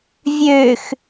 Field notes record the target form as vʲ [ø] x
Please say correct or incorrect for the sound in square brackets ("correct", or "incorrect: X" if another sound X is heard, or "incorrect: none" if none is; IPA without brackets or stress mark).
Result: correct